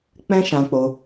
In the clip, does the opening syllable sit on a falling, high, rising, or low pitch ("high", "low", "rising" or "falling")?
high